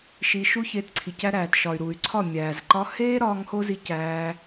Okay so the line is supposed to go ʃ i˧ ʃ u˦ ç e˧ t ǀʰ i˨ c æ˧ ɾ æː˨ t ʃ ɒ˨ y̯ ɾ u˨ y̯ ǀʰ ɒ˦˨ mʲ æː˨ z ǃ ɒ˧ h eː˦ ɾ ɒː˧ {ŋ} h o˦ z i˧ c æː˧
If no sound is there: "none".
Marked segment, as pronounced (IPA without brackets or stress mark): ŋ